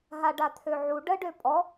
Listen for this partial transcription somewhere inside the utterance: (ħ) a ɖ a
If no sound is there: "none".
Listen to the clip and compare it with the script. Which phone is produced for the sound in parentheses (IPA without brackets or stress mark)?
ɦ